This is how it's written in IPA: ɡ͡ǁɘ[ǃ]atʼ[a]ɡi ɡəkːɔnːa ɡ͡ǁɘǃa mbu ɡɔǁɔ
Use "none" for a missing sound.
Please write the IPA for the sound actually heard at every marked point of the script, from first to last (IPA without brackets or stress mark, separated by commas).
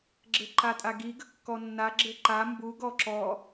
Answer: ǃ, a